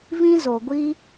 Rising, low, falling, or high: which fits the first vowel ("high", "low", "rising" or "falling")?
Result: high